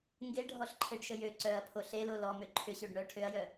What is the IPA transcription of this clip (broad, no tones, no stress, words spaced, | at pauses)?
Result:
ŋɡeɖʱɔɬǃʰeɖʃə jø ǀœɐ̯pʰo ɬelo lɔmø ǃʰʏɕøɖ ɳœ ʈʰøɐ̯jœ